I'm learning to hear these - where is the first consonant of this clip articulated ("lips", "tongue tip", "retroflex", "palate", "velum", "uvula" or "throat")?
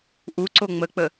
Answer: throat